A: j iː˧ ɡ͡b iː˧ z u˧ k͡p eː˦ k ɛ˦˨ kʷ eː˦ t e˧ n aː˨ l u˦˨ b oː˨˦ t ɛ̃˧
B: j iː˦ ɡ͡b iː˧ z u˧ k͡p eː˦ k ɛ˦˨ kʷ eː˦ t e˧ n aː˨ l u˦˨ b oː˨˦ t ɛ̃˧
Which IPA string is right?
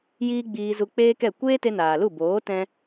B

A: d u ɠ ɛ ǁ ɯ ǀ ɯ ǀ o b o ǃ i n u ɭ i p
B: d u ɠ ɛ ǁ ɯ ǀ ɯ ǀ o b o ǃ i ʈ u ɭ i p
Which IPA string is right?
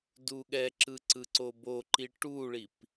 B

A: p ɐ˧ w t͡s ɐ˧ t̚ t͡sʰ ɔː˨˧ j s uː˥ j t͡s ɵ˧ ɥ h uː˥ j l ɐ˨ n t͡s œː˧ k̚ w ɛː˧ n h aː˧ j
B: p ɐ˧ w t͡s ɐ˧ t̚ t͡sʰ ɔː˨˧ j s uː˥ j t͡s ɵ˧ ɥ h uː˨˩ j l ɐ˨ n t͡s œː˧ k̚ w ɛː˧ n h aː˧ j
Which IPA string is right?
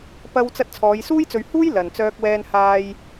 A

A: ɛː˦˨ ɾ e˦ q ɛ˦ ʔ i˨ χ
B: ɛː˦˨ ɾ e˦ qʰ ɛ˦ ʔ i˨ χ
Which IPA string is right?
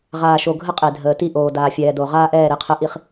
B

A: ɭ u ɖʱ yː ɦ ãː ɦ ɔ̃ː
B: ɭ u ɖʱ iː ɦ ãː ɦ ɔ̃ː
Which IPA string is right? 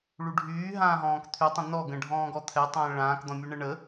A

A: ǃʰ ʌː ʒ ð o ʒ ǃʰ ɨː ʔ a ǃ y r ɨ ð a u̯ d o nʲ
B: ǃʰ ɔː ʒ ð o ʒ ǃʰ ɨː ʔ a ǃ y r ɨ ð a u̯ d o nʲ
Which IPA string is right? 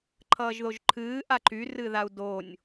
A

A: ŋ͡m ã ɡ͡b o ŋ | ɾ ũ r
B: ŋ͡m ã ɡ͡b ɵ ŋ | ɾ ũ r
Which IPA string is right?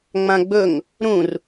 B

